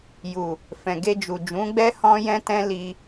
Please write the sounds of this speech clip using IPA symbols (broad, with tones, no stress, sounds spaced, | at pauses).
j u˨ | f ɛ̃˨ ɡ e˧ d͡ʒ u˨ d͡ʒ ũ˨˦ ɡ͡b ɛ˦ h ɔ̃˦ j ɛ̃˦ t ɛ̃˦ l i˧